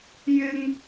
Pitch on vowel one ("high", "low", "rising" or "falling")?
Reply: high